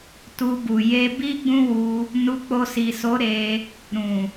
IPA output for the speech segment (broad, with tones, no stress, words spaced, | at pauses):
tu˧bu˨ je˧bi˦ɡ͡bũ˦wu˧ | nu˧k͡po˧si˨so˨˦ ɾe˧ | ɾũ˨